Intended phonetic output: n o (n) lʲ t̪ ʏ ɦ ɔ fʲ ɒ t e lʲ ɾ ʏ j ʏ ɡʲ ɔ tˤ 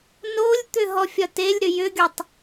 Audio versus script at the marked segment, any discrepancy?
yes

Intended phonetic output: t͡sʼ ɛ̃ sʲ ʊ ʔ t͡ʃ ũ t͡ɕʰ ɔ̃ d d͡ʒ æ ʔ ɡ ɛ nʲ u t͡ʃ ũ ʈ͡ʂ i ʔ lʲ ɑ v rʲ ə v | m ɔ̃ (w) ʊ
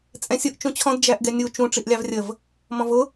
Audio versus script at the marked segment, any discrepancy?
yes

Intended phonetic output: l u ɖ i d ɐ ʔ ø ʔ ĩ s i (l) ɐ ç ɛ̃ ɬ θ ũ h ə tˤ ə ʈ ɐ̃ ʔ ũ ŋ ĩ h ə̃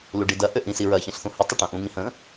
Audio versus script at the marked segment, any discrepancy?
yes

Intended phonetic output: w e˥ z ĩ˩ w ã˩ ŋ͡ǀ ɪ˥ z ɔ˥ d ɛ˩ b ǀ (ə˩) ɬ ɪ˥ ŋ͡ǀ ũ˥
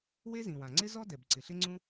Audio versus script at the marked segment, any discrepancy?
yes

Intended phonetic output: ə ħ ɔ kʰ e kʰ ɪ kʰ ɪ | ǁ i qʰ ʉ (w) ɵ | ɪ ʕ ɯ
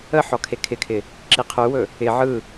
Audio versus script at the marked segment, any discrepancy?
no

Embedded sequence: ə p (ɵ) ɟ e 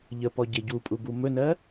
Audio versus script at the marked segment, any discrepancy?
yes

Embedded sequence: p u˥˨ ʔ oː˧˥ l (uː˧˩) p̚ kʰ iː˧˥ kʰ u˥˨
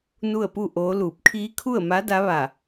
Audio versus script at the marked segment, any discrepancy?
no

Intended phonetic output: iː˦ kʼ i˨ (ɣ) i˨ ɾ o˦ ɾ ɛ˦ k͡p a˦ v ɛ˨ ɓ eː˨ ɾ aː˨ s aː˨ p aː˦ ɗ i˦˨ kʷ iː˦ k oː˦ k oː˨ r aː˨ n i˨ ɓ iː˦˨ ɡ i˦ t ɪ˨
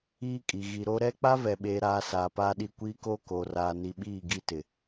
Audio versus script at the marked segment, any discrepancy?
no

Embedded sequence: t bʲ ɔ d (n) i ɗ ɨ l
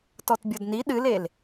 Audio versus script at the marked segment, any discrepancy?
no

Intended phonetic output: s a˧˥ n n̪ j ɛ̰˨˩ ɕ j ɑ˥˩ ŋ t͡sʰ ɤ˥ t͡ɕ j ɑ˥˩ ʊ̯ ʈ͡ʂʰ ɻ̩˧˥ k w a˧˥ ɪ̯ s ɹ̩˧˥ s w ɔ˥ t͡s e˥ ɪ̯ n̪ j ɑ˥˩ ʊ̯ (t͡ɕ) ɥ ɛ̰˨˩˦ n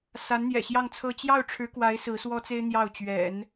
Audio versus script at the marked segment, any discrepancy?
no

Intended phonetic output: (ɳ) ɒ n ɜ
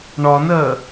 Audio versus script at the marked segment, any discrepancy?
no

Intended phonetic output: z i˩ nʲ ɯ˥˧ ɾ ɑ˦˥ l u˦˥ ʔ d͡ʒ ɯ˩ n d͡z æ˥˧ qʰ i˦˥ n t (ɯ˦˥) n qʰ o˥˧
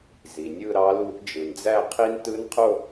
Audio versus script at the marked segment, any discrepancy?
no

